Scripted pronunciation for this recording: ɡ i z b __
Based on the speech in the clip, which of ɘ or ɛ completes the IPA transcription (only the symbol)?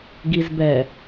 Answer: ɛ